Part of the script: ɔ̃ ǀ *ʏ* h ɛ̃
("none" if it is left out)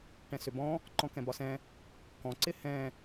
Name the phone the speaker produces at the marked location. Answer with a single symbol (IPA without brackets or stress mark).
ɪ